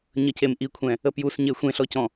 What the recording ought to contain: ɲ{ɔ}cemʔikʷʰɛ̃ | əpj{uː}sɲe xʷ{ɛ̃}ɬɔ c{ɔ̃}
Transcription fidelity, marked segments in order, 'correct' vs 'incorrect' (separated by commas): incorrect, incorrect, incorrect, correct